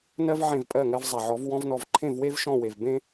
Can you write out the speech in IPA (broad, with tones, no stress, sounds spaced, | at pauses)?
n ɜ˦ v ʕ ẽ˦˨ v pʼ ɜ˦˨ ŋ ɜ˧ v zˤ a˨ ʕ ɔ˨˦ v w ɔ̃˧ v n ɔ˨ v ǃʰ ẽ˦˨ v w e˦ v ʃ ɔ̃˦˨ w e˨ v b ẽ˦